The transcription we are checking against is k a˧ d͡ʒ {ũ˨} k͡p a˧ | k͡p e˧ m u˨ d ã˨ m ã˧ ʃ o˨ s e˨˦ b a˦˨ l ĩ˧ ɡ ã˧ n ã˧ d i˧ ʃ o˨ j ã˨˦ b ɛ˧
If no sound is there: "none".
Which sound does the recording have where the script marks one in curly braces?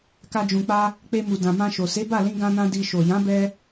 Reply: ũ˨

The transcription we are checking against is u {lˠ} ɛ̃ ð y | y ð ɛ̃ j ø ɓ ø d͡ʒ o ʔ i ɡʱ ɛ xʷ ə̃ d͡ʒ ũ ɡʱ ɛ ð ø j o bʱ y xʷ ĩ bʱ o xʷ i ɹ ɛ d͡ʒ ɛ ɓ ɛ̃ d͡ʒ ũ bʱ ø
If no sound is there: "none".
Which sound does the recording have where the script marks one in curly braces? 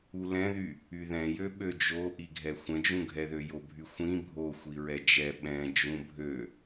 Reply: l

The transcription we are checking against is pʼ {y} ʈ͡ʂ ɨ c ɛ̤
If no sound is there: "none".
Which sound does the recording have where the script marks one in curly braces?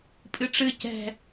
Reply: ɨ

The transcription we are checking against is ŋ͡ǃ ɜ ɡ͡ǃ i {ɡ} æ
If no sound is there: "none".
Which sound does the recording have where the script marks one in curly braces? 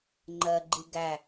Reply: ɡ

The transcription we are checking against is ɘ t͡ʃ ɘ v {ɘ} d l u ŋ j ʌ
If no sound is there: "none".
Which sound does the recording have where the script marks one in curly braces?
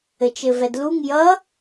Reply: ɛ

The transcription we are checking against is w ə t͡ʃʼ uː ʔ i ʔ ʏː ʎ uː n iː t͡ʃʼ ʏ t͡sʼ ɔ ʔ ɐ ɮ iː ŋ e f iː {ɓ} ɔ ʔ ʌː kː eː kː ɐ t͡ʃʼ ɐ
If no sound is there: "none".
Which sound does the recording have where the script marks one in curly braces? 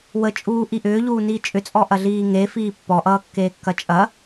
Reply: pː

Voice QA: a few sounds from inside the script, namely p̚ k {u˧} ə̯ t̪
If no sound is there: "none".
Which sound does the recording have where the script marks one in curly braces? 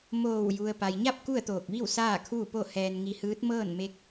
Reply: u˥˨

